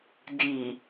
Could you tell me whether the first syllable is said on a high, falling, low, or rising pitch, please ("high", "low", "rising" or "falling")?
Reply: low